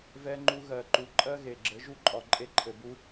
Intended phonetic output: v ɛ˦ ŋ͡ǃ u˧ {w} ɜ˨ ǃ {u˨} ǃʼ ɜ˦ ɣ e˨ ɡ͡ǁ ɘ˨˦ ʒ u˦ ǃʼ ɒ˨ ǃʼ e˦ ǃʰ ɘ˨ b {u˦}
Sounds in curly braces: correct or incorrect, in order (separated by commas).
incorrect, correct, correct